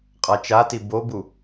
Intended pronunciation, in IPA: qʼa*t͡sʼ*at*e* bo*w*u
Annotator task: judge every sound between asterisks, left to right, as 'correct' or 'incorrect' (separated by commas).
incorrect, incorrect, incorrect